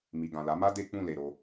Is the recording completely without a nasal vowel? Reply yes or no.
no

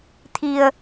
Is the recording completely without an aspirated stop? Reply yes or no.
no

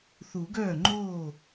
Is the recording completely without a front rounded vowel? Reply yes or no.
no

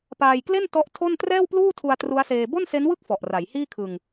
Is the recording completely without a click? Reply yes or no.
yes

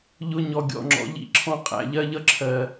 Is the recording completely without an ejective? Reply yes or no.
no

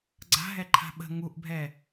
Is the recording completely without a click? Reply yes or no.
no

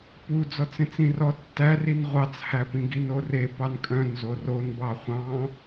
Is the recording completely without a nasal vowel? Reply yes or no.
no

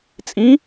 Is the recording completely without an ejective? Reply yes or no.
no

